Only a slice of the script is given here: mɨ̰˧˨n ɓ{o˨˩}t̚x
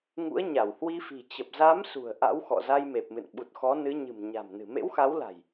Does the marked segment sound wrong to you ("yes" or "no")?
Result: yes